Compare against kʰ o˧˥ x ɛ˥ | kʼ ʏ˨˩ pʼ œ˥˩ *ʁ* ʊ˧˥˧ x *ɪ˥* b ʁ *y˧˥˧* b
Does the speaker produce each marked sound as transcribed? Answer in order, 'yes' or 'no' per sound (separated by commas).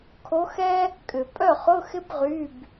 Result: no, yes, yes